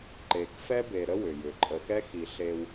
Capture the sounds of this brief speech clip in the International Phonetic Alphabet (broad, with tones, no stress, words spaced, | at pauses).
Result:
ǃe˨kfɛ˦be˨ɾə˦ wʏ˨jʏ˨ ǃʼə˨xɛ˦xi˨ ɬe˦w